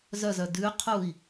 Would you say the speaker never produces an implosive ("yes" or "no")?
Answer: yes